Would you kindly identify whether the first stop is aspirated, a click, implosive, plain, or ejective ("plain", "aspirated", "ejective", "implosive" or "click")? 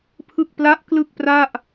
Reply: aspirated